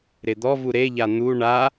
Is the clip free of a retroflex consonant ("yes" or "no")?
no